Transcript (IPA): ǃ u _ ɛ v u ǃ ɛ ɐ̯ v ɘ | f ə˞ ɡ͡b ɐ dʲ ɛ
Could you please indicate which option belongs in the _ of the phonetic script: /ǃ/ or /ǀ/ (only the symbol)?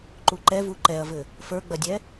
ǃ